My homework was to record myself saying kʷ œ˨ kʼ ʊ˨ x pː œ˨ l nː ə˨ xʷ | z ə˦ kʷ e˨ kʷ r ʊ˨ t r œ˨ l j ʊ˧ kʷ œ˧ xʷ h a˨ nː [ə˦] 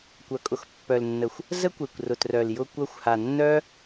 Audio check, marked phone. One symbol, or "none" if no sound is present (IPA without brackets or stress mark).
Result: œ˦